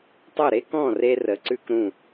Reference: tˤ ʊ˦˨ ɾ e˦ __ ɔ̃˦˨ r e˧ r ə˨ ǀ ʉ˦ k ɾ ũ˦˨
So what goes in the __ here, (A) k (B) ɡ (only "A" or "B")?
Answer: A